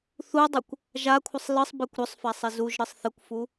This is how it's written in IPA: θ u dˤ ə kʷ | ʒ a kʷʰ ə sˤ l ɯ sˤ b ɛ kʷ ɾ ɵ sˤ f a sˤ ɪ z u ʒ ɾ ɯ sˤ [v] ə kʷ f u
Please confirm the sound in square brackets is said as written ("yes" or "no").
no